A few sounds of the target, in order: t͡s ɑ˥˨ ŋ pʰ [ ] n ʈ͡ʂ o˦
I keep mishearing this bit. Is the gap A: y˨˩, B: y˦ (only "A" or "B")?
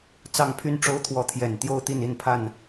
B